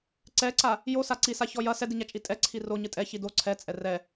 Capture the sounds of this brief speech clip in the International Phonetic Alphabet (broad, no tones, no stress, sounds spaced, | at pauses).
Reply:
ǀ ɛ ǀ a | j o s a ǀ i s a ç ɔ j ɐ s ɛ d i ɲ a t͡ʃʼ i tʼ ɛ ǀʰ i r o ɲ ɨ tʼ ɛ ç i d o ǀʰ ɛ t͡sʼ ɛ r ɛ